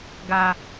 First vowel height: low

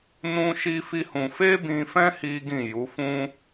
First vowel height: high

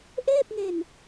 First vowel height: mid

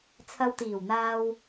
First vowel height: low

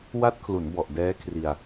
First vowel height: low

